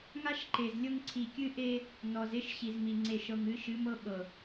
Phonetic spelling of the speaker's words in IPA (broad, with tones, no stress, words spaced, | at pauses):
ŋa˦ʃ ǃe˨zlʲɤ˦ŋ ǀʰi˨ kʲɨ˦ʔe˦ | nɔ˨ze˦ʃ ɕi˨zmi˨ ŋ͡ǀe˨ʃɤ˨ŋɨ˨˦ ʃɨ˨˦mɤ˦ ɓɤ˨